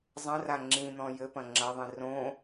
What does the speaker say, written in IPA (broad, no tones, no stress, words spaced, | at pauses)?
zˤɐ̃ra ŋ͡ǁĩn̪ɔ̃ jɘpɐ̃ ŋ͡ǁɐðˤĩ rõ